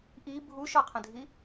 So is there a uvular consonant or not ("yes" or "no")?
yes